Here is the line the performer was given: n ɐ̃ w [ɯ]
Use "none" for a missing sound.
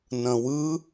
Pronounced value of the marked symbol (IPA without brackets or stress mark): ɯ